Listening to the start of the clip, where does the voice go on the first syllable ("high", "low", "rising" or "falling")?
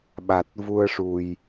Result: low